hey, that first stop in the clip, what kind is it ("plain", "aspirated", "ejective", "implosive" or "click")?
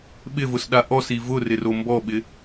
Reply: implosive